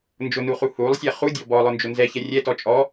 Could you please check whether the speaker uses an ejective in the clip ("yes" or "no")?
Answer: yes